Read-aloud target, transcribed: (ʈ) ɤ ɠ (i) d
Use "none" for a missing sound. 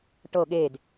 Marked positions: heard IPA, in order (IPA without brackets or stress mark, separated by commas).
ʈ, e